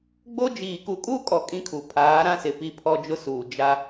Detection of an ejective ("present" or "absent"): present